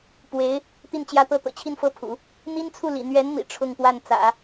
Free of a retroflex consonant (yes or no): no